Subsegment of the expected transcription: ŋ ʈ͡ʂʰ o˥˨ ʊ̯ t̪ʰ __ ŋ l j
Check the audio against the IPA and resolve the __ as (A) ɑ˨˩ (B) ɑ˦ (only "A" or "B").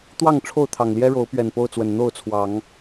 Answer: A